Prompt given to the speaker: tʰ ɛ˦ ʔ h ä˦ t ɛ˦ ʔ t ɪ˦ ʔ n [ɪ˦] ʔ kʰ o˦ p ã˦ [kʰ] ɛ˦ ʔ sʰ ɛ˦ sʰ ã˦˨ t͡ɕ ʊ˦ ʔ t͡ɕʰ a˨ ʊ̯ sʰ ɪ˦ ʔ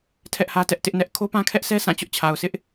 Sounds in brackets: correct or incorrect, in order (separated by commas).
incorrect, correct